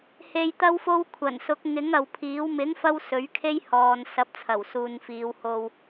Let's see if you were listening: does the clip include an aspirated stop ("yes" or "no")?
yes